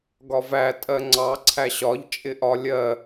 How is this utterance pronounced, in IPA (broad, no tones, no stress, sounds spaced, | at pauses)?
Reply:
ɡ ɒ v æ tʼ ɜ ŋ͡ǀ ɑ ǀʰ æ ɕ ɒ ʎ t͡ʃʼ ɪ ʔ ɒ lʲ ɜ